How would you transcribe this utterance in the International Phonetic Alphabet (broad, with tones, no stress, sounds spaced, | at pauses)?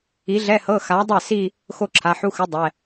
i˨˥ ɮ ɛ˧˥˧ h ɤ˧˥˧ x a˨˥ dˤ ɛ˥˩ s i˥˧ | x o˥˧ ǁʰ a˩˧˩ ħ u˧˥˧ x ɯ˨˥ dˤ ɛ˩˧˩